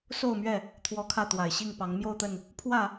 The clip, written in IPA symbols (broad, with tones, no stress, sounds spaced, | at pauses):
s o˥˨ ʊ̯ m ɥ ɛ˥˨ | t̪ʰ w ɔ˦ kʰ ä˥˨ t̪ w a˨˩ ɪ̯ ɕ i˥˨ ŋ p ɑ˨˦ ŋ m j o˥˨ ʊ̯ t̪ ə˥˨ n | pʰ w ä˥˨